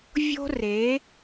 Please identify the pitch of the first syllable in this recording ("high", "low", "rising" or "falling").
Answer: high